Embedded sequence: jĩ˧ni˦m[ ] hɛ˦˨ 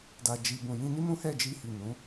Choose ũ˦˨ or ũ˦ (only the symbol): ũ˦